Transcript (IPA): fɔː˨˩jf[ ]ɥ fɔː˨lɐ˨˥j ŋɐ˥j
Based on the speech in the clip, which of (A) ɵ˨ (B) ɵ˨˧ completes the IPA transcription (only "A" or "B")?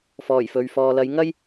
A